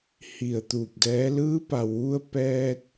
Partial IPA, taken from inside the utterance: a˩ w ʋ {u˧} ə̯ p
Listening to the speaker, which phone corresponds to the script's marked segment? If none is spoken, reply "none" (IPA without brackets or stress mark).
u˧